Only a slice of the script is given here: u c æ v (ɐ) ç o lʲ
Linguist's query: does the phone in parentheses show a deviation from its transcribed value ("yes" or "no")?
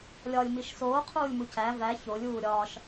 yes